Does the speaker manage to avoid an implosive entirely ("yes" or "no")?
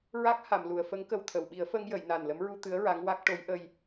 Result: no